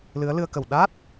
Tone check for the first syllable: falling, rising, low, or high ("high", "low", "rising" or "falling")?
rising